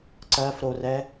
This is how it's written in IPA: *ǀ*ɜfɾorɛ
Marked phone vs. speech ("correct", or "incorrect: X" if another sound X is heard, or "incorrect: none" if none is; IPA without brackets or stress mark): correct